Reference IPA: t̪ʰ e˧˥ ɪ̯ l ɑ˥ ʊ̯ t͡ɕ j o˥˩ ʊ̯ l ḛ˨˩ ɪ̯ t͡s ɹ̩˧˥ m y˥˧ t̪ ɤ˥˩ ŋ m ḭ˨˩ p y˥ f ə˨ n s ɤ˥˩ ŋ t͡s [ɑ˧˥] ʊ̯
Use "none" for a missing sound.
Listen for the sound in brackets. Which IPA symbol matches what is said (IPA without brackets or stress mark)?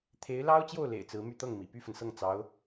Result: ɑ˧˥